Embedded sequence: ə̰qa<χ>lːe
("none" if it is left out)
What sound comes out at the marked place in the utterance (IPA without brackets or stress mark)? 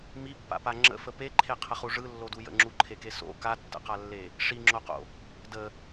none